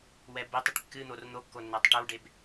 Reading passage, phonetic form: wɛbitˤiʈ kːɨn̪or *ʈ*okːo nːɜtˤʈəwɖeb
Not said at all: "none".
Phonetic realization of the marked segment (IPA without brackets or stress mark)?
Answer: n̪